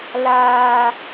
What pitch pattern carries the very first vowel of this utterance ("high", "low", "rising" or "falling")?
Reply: low